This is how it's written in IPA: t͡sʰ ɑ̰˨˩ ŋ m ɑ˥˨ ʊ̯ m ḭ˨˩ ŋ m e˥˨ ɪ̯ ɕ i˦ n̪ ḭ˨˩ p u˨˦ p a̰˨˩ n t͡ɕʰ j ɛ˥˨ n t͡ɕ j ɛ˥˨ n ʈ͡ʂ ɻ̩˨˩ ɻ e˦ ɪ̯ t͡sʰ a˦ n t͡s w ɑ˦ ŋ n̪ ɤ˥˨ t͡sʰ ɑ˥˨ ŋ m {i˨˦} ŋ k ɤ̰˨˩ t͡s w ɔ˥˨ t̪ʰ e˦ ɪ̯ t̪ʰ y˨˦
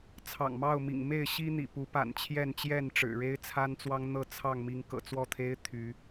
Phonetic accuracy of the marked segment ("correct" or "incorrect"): correct